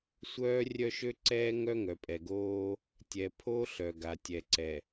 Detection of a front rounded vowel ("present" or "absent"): present